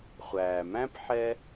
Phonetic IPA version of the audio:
χʷ æː˩ m æ̃˦ p ħ ɛ˥

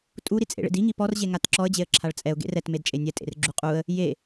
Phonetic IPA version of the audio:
tʼ u ɾ i t͡sʼ ḛ ɭ ḛ d i ŋ i p ɔ r ʑ e ŋ a t ǁ ɔ ə̯ d͡ʑ e ə̯ ǁʰ a ɭ t͡sʼ ɛ ʊ̯ ɡ ḛ r ɛ t m e d t͡ʃʼ e nʲ ɛ tʼ ḛ r ɡ͡ǁ u qʼ u ə̯ | j e

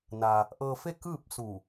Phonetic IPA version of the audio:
n a˧ | ʔ ɤː˧ f e˥˨ k ɯː˥˨ p̚ s u˧˩

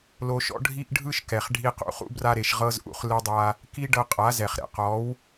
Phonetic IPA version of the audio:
l o˧ ʃ ɔ̰˦ ɖʱ i˦ ʔ ɖʱ ɯ˦ ʃ k ɛ˨ χ ɖʱ i˧ q ṵ˧ χ ṵ˦ b r a˧ ɾ e˨ ʃ ʁ ɤ˦ z ʔ ṵ˦ χ l ɯ˧ dˤ a˧ | k i˦ ɖ ɤ˧ qʼ a˨˦ z ɛ˨ χ ɾ ɛ̰˨ q ɔ˨˦ w

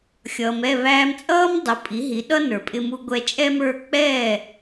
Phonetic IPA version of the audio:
xʲ ʌː˩ m ɛ˥˩ β æː˧ m t͡sʼ ʌː˥ m dˤ ʊ˩˥ pʼ i˩˥ ɦ i˩˥ ɗ ʌ˥ n ə˞˩ pʼ ɪ˧ m u˧ ɡʷ ɛ˧ t͡ʃʼ ɛ˥ m ə˞˥˩ k͡p ɛː˥˩

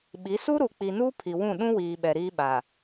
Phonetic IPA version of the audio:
ɓ i˨˦ s u˦ ɾ u˨ k͡p i˨ n uː˦ pʰ i˨ w ũ˦˨ ɗ ũ˦ w iː˨ ɓ ɛ˨ ɾ iː˦ ɓ a˨

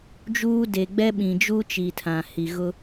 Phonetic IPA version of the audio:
d͡ʒ uː˦ d e˨ ɡ͡b ɛ˦ ɓ ĩ˨ d͡ʒ u˦ t͡ʃ i˨ tʰ ã˨ h i˨ ɣ ʊ˦

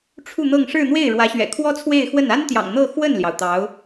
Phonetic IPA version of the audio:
ʈ͡ʂʰ u˥˧ n̪ ɤ˥˧ ŋ ʂ ɻ̩˥˧ n̪ w e˥˩ ɪ̯ ɻ w ä˧˥ ɕ ɥ ɛ̰˨˩ kʰ w ɔ˥ t͡sʰ w e˥˧ ɪ̯ x w ə˥˩ n a˥ n t̪ j ɑ̰˨˩ ŋ n̪ ɤ˥˧ x w ə˥˩ n l j ɑ˩ ʊ̯ t̪ ɑ˧˥ ʊ̯

